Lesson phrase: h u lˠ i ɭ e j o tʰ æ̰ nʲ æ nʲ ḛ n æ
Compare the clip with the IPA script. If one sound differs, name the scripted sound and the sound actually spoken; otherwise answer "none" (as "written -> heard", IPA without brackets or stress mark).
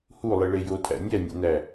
none